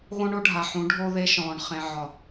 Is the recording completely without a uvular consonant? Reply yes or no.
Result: no